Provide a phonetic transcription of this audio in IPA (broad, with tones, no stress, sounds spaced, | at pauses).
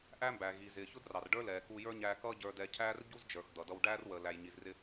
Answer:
ʔ æ˥ m b æː˩ ɣ i˩ z ɪː˩ ç ʊ˥ d r ɑ˩ r ɖ ə˞˥ l ɛː˩ k u˧ j ə˞˥ ɲ æ˧ k ʌː˥ ɟ ə˞˧ d ɛ˧ cʰ æː˥ r ɟ u˥ z d͡ʒ ə˞˩ x d̪ ʌ˩ d ʌ˧ w ɖ æː˥ r w əː˩ l æ˩ j ɲ i˩ z r ɪ˧